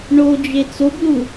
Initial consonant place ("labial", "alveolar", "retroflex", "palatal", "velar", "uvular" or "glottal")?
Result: retroflex